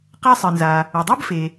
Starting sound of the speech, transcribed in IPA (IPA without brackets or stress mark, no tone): q